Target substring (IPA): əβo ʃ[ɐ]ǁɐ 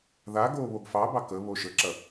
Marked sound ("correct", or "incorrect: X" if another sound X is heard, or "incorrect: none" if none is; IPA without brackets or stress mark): incorrect: ə